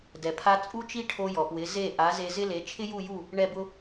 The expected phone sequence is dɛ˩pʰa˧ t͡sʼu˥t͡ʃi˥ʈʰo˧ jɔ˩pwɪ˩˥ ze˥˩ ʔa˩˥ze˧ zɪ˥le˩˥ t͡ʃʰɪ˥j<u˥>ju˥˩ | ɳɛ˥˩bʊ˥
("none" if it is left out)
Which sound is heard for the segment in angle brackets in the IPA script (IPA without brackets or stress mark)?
u˥˩